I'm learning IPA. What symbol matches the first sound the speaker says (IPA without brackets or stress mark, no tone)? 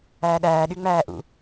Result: æː